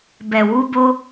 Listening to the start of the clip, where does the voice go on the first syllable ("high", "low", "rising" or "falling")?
low